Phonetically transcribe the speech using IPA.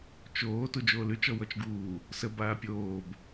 t͡ʃ oː t u d͡ʒ oː l ʉ t͡ʃ ɔ w ɔ t͡ʃ ɡ uː | s ə b aː pʲ oː b

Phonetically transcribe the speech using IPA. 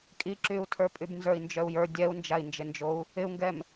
kʼ i ǁ y u̯ tʰ ə˞ pʼ y b n z ə˞ i̯ n d͡ʒ œ u̯ j ə˞ dʲ ɛ u̯ n d͡ʒ a i̯ n d͡ʒ ɪ n d͡ʒ o u̯ | ɪ u̯ ŋ ɡ ɛ m

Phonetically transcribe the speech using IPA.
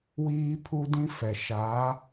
w iː˦ pʰ u˦ d ĩ˦ f ɛ˨ ʃ a˨˦

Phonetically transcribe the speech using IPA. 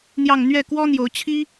n̪ j ɑ˥˧ ŋ n̪ ɥ ɛ˥˩ k w ɔ˥ n̪ j o˧˥ ʊ̯ t͡ɕʰ i˥

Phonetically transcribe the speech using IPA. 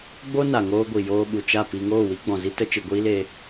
ɡ͡b o˦ n a˨ ŋ oː˧ ɡʷ i˨ j oː˧ ɓ u˨ t͡ʃ a˦˨ p i˧ ŋ oː˦˨ w i˦ ɡ͡b ɔ̃˨ z i˦ t ə˧ t͡ʃ ɨ˨ ɡʷ iː˦ l e˧

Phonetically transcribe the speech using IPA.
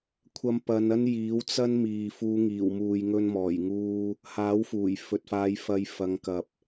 kʷʰ ɐ˨˧ m p ɐ˨˧ n ɐ˥ n j iː˨˥ w t͡s ɐ˥ n m iː˨ f uː˨˧ ŋ iː˨˩ w m uː˨ j ŋ ɵ˧ n m ɔː˨˩ j ŋ uː˧ | h aː˨˥ w f uː˨˩ j f ɵ˨ t̚ f aː˨˧ j f ɐ˧ j f ɐ˨˧ ŋ k ɐ˨ p̚

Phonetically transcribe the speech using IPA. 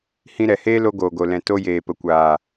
h ĩ˧ ɾ ɛ˨ h eː˦ l o˧ ɡ oː˨ ɡ o˨ l ɛ̃˨ t o˧ j eː˨ p ə˨ kʷ aː˨

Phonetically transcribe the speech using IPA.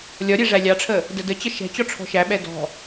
lʲ ɒ ɾʲ ɛ ʐ æ lʲ ɑ ʈ͡ʂʰ ə | d ə d ə t͡ɕ ə ʃ ɛ̤ t͡ɕ ɔ ʈ͡ʂʰ ɔ̤ ʃ æ ɓ ɛ d ɔ̤

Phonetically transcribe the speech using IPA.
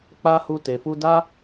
k͡p a˦ h u˧ t e˨ f u˧ d a˦

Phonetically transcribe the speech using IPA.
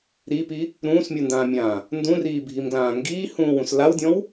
ɾ i p i | ɾ ũː s mʲ u n d ãː mʲ ãː | n d ũ r iː bʱ i m ɡ l ãː ŋ ɡ iː h ũː w ũ s l a w dʲ ɔ̃ w

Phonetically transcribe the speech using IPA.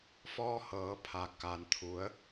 f ɔː˧ h ɤː˩˧ pʰ a˩ k a˩ n t̪ʰ u˩˧ ə̯

